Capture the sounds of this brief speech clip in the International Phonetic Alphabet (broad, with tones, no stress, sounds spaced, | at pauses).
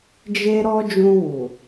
d͡ʒ e˦ ɾ ɔ˦ d͡ʒ ũ˧ w u˨